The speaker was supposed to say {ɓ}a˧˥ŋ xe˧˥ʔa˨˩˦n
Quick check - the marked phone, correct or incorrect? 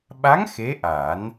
correct